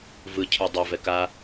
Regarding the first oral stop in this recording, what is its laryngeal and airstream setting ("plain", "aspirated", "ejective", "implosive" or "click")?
aspirated